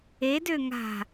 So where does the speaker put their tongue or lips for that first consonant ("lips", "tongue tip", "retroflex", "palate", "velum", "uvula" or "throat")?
tongue tip